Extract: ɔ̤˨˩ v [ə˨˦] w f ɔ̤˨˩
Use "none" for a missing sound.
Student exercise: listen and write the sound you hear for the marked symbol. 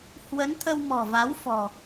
a˨˦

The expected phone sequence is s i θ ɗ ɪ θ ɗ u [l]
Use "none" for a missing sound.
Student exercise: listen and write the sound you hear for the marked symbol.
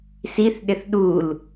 l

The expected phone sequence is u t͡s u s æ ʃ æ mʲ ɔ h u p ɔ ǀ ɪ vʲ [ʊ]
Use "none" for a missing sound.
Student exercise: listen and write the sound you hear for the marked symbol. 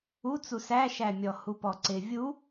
u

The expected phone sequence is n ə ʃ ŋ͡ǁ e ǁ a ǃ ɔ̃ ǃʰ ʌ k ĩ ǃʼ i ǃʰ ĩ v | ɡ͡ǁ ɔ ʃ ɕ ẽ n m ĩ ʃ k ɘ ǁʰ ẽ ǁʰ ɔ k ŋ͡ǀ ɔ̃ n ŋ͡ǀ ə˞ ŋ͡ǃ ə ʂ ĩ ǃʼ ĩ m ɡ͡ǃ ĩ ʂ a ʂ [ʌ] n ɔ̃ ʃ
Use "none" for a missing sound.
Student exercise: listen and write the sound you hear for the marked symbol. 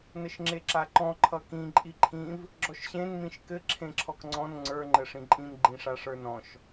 ə˞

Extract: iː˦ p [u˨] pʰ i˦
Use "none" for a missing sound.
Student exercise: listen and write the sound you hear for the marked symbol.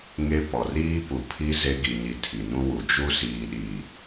u˨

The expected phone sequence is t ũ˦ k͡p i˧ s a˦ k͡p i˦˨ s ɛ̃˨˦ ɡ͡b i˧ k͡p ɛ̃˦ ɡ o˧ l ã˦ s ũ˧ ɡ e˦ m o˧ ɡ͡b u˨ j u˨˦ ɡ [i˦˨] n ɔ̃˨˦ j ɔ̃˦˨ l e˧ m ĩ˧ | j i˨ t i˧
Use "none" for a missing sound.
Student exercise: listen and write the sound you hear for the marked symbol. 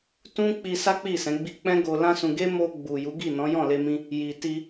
i˦˨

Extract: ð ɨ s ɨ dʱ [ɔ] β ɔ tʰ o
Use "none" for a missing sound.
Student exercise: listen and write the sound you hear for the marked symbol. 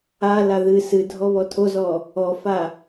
ɔ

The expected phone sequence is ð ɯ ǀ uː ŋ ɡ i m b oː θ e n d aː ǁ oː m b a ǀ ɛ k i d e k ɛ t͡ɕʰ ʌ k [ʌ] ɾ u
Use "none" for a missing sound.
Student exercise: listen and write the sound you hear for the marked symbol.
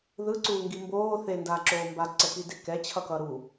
ʌ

